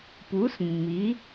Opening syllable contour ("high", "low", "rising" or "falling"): rising